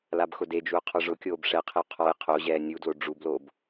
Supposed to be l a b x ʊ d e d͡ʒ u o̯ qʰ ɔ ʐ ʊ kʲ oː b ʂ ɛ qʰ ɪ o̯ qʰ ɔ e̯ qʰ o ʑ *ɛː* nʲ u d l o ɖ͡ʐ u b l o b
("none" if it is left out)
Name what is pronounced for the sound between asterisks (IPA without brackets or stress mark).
ɛː